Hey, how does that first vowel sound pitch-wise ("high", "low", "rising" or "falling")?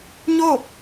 falling